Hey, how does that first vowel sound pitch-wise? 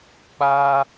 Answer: high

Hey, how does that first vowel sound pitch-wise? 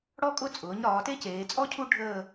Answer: high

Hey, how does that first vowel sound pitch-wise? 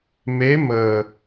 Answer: rising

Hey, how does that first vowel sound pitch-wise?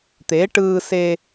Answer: rising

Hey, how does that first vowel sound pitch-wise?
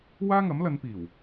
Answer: high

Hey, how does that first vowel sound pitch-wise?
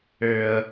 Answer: low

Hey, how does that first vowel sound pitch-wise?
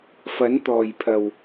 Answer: rising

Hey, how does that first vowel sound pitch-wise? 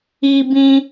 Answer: high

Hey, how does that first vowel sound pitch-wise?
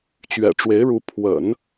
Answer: low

